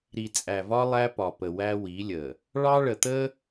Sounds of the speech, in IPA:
ɾ i˨ t͡sʼ æ˨ v ɒ˦ lˠ æ˦ p ɒ˨ p ə˨ w æ˦ w i˨˦ lʲ ə˨ | ɭ ɑ˦ ɭ ə˨ t̪ ə˦

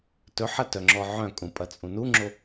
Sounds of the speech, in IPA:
t ɵ ħ ɐ t œ ŋ͡ǁ ɔ ʕ œ̃ kʼ ũ pʼ ɐ t͡sʼ ũ n u ŋ͡ǁ o

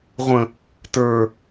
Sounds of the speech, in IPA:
ʁʷ ə̃ | t ə˞

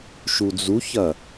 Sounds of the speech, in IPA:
ʃ u d͡z u ç ɐ

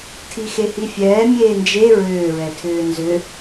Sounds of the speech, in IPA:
tʰ i x e h i fʲ ɛː mʲ eː n d͡ʒ e ɹ ʏː ɹ ɛ tʰ ʏː n z ʏ

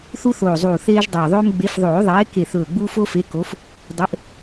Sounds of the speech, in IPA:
θ u˦ θ oː˨˩ zˤ uː˨˩ θ eː˦ ʒ dˤ ɵː˨˩ ðˤ ɵː˦ m ɡ͡b e˨˦ f ðˤ oː˨˩˦ ðˤ eː˨˦ k e˨˩ θ ɵː˨˩ ɡ͡b uː˦ f o˦ f e˨˦ k o˨˦ f | dˤ ɘ˨˦ ʔ

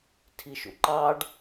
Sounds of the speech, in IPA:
tʰ i ʃ ṵ ǃ ɑ ɖ

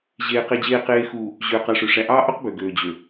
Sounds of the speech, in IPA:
ʑ eː˨ q e˨ d͡ʑ eː˨ q eː˨ x uː˨ | ʑ øː˨ q ɑ˨ ʂ ø˨ ʂ æ˨ ʔ ɑː˦ ʔ o˦ q b ø˨ ɡ øː˨ d͡ʑ ø˨

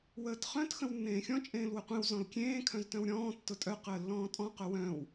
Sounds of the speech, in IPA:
w əː t χ œ̃ t x ə̃ w nː ẽː xʲ ɔ̃ t͡ʃʼ ẽː l w ə qʷ ẽ w z ɔ̃ l kʲ ẽː kʰ œ̃ z t œ̃ w ɾʲ ɔ̃ː tː ʊ tʼ œ q əː lː ɔ̃ː tʼ ɔ̃ q œ w œ̃ː w

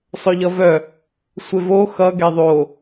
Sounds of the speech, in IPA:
sˤ œ ʎ ʌ v œ | sʷ e v o x ʌ ɡ ɛ ðˤ o

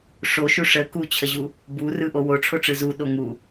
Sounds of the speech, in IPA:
ʂ o ʃ u ʂ ə k u t͡ɕʰ ə ʑ u | b u r ɯ ʔ o w o ʈ͡ʂʰ o ʈ͡ʂ ɯ z u ɗ o ŋ u

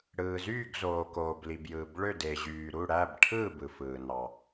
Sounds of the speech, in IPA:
ɽ ɯː˩ z yː˥˨ ɡ z oː˩ k oː˩ b l i˩ b j ɯː˩ b ɭ ø˥˨ d e˩ ʑ yː˩ ɾ u˥˨ ɽ æ˥˨ b ʈʰ ɯː˥˨ b ɯ˩ f ɯː˩ n ɑ˩

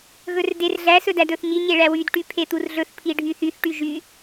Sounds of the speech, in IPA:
ɣ ɵ r d e r ɮ æ s ɵ d æ d ɵ θ ɲ i ɲ e ɭ æ w y d ʈ y pʰ e t̪ u r ɮ ɵ θ pʰ i ɖʱ y θ y θ ʈ y ʒ y

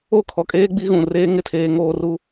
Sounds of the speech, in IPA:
o˦˨ kʰ ɔ˨ kʼ eː˦ ɡ͡b i˦ ɣ ũ˨ r eː˦ ŋ ɪ˦˨ tʰ eː˦ ŋ oː˦ r u˦

